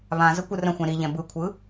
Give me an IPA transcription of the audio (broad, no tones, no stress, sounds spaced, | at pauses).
β ã z ə kʷ ɯ r ə̃ xʷ ɛ̃ ɾ i ʎ ɛ̃ b ɯ kʷʰ ɯ